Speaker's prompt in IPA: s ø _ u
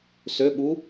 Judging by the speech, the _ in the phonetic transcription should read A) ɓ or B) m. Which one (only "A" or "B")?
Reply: A